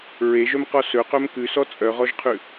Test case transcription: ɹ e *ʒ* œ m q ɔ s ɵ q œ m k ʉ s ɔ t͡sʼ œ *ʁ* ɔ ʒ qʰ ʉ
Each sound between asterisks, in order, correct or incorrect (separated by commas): correct, correct